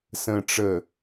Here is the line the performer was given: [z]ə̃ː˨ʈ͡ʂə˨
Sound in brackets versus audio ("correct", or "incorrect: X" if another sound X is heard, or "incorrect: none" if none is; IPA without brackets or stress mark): incorrect: s